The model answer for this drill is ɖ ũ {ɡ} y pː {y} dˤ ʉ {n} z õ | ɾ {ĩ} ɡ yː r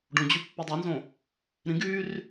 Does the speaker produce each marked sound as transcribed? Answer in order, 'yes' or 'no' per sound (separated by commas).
no, no, yes, yes